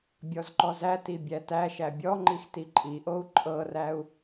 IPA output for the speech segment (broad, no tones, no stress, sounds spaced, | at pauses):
bʲ ɔ z ǃ ɔ z æ t i bʲ æ t æ ʃ æ bʲ ɔ ŋ͡ǃ i x t i ǃʼ i ʔ o u̯ ǃʼ ɤ r æ u̯